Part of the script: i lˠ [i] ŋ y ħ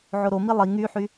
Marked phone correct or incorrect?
correct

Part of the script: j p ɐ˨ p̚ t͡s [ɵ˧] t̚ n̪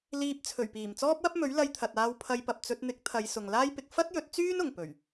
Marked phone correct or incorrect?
correct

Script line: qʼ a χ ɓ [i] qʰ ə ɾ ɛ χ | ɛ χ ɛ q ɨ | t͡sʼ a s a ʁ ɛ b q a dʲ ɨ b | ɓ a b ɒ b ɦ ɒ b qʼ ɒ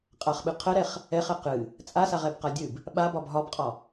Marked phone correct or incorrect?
incorrect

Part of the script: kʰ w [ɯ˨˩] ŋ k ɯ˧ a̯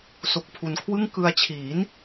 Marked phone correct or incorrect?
incorrect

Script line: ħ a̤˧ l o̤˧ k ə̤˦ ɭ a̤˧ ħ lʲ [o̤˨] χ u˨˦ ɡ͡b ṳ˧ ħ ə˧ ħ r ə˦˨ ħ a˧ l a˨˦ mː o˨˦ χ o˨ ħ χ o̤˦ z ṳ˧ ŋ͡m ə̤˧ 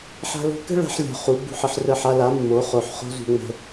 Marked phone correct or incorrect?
correct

